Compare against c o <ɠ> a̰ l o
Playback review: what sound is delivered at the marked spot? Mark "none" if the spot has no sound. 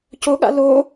ɠ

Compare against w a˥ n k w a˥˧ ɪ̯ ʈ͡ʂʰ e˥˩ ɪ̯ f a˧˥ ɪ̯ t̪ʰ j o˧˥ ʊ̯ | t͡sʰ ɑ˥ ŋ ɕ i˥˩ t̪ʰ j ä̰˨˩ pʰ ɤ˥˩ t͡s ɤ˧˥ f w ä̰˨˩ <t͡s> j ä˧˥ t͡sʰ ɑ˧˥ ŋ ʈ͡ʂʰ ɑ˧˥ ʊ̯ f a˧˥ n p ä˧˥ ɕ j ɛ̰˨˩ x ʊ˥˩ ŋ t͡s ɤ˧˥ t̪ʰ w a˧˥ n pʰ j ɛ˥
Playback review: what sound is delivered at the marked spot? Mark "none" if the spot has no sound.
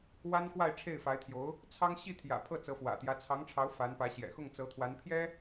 t̪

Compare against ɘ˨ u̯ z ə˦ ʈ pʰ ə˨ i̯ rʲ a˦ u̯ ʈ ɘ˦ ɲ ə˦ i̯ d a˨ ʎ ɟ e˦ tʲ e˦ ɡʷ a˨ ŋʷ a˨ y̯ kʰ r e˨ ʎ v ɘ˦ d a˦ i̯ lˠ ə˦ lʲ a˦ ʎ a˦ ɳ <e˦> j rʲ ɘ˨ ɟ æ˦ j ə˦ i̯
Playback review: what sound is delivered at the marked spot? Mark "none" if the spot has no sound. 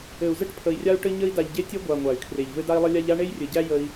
e˦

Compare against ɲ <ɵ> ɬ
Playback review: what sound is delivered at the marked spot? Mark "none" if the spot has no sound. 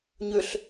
ø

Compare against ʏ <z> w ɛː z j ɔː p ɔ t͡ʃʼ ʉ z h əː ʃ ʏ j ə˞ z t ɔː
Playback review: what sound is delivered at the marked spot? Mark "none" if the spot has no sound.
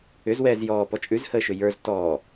z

